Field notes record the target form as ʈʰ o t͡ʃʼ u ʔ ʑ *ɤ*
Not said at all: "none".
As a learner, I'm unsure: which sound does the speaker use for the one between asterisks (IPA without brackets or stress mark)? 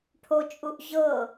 ɤ